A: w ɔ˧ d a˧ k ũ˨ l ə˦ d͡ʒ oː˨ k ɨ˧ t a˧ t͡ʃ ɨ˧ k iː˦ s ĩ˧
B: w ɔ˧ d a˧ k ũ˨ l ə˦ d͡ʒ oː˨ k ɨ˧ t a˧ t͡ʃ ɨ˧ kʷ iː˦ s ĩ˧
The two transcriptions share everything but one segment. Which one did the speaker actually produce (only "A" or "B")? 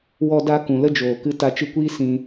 B